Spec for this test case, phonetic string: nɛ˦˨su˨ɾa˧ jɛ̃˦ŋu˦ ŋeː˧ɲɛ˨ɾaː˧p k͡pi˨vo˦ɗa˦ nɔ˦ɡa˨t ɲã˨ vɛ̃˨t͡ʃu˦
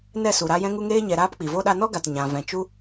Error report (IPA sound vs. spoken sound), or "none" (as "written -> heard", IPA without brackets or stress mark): none